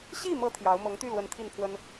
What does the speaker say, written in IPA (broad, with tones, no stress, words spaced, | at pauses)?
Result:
ɕi˥˩mɤ˧˥ t̪ʰjɑ˧˥ʊ̯mɤ˧˥ŋ t̪y˥˩lwə˧˥n t̪ʰi˥˩npʰwə˥n